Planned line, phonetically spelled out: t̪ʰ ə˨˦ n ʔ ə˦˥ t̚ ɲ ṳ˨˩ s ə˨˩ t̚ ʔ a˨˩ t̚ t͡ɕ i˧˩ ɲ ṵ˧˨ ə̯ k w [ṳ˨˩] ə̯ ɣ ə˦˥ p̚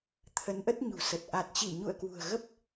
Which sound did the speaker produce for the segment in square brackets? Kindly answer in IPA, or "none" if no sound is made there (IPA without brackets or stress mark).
ṳ˨˩